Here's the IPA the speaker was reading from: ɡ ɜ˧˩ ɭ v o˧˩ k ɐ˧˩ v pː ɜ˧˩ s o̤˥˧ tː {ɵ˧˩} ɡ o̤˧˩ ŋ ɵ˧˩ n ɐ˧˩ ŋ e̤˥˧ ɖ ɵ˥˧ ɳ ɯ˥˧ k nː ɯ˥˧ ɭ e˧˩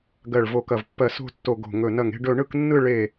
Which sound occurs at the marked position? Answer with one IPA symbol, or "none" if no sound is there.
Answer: o˧˩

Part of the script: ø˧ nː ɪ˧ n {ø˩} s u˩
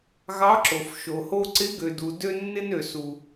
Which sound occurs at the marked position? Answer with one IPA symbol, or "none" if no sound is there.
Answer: ø˩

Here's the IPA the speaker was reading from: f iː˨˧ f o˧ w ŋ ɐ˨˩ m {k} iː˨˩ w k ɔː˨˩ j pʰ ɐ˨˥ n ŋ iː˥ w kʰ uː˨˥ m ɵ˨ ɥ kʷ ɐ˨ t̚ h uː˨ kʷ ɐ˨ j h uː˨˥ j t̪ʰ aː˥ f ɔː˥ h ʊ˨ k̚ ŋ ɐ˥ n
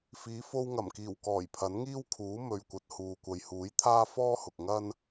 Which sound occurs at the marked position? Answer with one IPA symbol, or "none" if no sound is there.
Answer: k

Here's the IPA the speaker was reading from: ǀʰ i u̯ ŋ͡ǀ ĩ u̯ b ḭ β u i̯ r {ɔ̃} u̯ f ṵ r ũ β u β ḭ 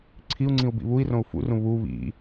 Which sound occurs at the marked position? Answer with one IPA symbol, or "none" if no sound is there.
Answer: õ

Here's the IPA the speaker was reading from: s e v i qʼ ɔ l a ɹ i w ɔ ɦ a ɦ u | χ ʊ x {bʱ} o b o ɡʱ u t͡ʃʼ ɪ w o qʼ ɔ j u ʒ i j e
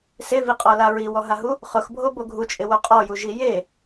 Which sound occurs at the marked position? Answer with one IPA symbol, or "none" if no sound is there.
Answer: bʱ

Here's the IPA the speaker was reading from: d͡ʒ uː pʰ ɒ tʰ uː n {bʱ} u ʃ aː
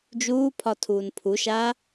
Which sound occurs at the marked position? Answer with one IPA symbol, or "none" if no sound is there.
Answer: pʰ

